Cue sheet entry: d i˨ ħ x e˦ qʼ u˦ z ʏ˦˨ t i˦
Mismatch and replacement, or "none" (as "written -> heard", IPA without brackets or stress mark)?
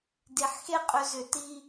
u˦ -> ʏ˦